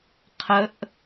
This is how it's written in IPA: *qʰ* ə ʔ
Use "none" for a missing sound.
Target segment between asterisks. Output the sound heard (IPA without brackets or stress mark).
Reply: qʰ